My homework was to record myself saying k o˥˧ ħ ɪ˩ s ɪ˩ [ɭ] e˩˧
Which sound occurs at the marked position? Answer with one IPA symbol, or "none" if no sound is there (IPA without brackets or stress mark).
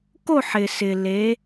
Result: l